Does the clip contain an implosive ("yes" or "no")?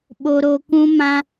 yes